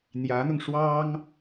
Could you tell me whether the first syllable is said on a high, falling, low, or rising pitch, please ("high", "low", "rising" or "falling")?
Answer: rising